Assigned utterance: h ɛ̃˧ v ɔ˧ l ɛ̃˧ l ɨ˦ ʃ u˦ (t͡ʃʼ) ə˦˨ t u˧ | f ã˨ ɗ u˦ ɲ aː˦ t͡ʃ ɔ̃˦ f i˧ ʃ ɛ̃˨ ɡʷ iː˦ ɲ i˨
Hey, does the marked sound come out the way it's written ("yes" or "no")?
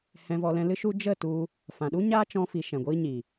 no